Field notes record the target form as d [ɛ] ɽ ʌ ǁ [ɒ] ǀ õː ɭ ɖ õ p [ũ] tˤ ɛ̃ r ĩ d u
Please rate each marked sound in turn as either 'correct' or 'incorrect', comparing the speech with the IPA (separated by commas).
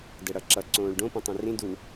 correct, incorrect, correct